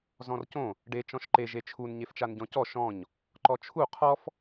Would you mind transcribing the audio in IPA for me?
zɔ̃rcõ | ɖe t͡ʃɔ̃ʃǃeʒ et͡ʃʰun ɲeft͡ʃanɟɔ̃cɔ ʃɔ̃ɲ | ǃɔt͡ʃʰu qʰɔf

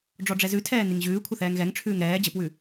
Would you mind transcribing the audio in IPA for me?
ɖ͡ʐɔɖ͡ʐɛzʉtʰɛː niŋʑʉːkʷʰə θɛːŋɣɛŋʈ͡ʂʰʉːŋ ɾɛː d͡ʑəpwʉ

